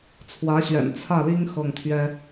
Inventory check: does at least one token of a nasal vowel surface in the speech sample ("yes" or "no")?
no